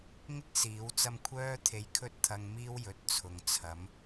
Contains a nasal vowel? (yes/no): no